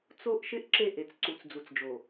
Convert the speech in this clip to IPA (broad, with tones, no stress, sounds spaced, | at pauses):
t͡s o˦ ʔ ʃ ɪ˦ ʔ ǁ e˦˨ ʔ e˨ t͡s ǀ u˨ t͡s d͡z u˨ t͡s d͡ʒ o˨